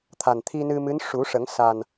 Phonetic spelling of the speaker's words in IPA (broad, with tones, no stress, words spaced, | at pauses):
t̪ʰa˨˩nt̪ʰi˧nɨ˧ mɨ˧˥nʂu˨˩˦ʂə˨˩˦ŋ sa˨˩n